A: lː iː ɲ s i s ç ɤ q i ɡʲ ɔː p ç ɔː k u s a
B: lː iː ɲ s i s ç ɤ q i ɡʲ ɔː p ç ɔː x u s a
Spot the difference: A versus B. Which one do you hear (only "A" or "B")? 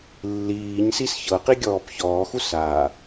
B